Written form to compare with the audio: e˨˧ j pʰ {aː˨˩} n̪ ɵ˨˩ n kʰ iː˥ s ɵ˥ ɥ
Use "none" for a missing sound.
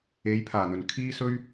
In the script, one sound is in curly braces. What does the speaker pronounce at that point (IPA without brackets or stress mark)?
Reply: aː˨˩